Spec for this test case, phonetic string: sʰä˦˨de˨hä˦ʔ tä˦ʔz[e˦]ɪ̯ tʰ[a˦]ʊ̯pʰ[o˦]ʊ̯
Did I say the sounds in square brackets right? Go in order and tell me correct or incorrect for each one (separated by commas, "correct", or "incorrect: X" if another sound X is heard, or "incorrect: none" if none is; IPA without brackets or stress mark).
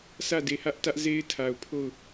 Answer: correct, incorrect: a˨, incorrect: o˦˨